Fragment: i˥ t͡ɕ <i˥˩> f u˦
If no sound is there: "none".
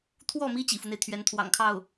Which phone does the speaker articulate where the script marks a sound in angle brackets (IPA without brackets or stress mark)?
ḭ˨˩